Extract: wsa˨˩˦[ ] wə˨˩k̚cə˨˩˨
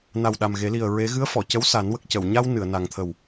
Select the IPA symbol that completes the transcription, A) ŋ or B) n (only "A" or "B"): B